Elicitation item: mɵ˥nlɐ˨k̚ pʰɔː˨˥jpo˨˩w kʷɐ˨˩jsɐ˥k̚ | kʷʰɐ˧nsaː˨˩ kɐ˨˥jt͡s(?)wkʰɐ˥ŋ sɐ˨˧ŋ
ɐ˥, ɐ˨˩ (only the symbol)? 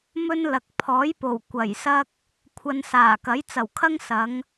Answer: ɐ˨˩